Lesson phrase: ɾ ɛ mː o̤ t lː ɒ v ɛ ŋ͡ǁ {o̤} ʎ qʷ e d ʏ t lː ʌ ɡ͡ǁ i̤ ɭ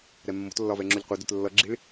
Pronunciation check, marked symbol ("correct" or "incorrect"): incorrect